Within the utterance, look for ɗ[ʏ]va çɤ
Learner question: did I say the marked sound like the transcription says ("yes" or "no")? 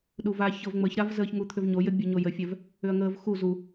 no